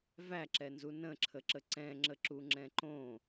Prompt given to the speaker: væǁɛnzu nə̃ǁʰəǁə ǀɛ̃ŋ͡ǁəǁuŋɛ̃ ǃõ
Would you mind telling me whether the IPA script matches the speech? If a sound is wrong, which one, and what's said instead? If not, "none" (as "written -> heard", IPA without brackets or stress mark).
ŋ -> ŋ͡ǁ